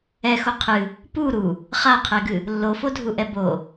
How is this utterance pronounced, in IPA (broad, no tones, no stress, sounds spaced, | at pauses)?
ɛ x o qʰ ɨ | p u ɾ u | χ a qʰ ɛ ɡ ɨ | lː o f o dʱ u ʔ ɛ b o